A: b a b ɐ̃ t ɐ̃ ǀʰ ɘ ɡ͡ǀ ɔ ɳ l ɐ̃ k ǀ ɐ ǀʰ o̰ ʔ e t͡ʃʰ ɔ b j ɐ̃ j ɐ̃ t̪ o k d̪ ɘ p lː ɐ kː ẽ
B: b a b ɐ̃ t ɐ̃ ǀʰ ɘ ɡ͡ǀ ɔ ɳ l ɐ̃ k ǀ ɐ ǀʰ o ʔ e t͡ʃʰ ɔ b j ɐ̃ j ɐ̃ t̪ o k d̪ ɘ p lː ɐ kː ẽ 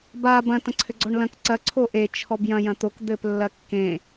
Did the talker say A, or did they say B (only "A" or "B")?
B